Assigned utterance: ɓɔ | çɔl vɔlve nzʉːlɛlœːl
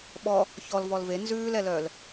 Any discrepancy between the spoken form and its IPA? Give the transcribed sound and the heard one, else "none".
none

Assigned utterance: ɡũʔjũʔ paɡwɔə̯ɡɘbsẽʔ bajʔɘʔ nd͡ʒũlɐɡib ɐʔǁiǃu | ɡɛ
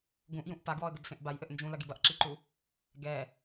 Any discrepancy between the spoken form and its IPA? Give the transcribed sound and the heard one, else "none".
none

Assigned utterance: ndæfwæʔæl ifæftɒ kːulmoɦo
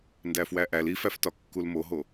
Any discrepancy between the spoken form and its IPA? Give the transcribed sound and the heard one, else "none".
none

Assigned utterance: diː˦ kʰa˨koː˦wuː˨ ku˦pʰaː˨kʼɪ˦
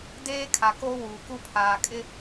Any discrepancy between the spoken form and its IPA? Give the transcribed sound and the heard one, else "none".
iː˦ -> eː˦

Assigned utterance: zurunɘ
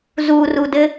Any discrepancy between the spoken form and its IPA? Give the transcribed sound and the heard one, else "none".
n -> d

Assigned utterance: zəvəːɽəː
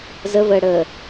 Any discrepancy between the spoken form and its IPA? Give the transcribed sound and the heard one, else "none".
none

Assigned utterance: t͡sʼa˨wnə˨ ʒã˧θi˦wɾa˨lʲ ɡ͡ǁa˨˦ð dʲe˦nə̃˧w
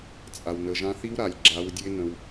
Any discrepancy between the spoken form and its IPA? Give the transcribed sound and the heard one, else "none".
ð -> w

